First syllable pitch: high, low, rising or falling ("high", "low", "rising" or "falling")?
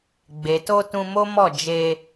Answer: low